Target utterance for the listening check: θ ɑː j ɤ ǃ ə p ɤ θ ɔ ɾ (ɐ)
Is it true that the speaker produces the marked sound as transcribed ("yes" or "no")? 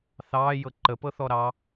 no